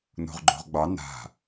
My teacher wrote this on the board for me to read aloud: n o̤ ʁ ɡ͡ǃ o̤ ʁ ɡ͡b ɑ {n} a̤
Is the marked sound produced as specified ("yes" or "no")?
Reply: yes